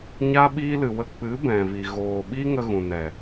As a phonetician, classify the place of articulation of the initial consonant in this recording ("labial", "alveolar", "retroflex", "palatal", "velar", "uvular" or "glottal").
palatal